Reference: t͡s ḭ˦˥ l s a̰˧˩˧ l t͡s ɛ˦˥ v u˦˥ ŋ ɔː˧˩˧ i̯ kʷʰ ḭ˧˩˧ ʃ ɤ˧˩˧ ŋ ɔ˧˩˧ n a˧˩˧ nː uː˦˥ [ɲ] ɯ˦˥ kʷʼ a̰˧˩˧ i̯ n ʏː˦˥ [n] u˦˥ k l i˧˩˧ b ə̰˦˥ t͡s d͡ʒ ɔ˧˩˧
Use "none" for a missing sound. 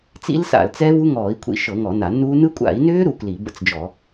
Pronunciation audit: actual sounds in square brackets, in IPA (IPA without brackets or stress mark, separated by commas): n, ɾ